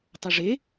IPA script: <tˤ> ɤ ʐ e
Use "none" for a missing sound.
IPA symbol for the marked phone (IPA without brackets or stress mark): tˤ